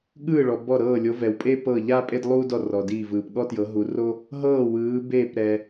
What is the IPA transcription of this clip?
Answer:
ɠ ɯː˥˩ ɭ ɔ˨ b ɔ˥˩ ɾ ɤː˥˩ lʲ o˨˥ v ɛ˨ w pʼ e˥ p ɤ˥˩ ʎ a˥ pʼ e˥ d lˠ uː˥ d ɔ˥˩ r ɔ˨ d iː˥˩ v ɯː˨ p ɠ ɔ˥ t j ɤ˨˥ ɦ u˨˥ r o˥ | ɦ ɤː˥˩ w ɯː˨˥ b eː˥˩ p ɾ ɛ˨

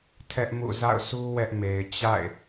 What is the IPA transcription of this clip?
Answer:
tʰ ɛ˦ ʔ m ṵ˦˨ z a̰˦˨ ʊ̯ s u˦ w ɛ˦ ʔ m e˨ ɪ̯ t͡ɕ a̰˦˨ ɪ̯

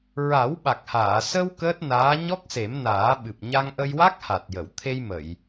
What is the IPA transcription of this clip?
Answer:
ɹ a˨˩˦ w ɓ a˨˩ k̚ h aː˨˩˨ s ə˧ w k əː˦˥ t̚ n aː˧˥ ɲ ɔ˦˥ k̚ s e˨˩˦ m n aː˨˩˦ ɓ ɨ˨˩ p̚ ɲ a˧ ŋ ʔ ə˧ j w a˦˥ k̚ h a˨˩ t̚ j ə˨˩˨ w t̪ʰ e˧ j m ə˨˩˨ j

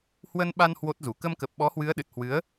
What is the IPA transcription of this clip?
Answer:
h w ə˧ n ɓ a˧ n h w o˦˥ t̚ z u˧˩ k ə˧ m k ə˨˩ p̚ ɓ ɔ˨˦ h w ɨ˨˦ ə̯ ɗ ɨ˨˩ t̚ h w ɨ˨˦ ə̯

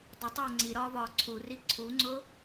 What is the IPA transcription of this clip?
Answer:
dˤ ə tˤ oː ŋ͡ǀ i ɾ ɒː v ɒː ǀʰ u r i ǀʰ u ŋ͡ǀ ʊː

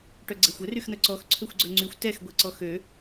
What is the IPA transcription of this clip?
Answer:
ʈ œ ɡ͡ǀ ɛ xʷ ə r y x n̪ œ ǀ ɔ x ǀʰ ø xʷ ɡ͡ǀ œ ŋ͡ǀ y xʷ t ɛ x ɡʷ ɛ ǀ ɔ x ø

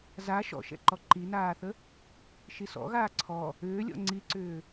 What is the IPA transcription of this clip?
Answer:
z a ʃ ɔ̰ ʃ ɛ̰ ǃ ɔ ǃ i n aː θ ə | ʃ i s ɔ̰ ɣ aː ǀʰ ɔ | ʏː lʲ ɔ̰ ŋ͡ǀ i ǀ ʏː

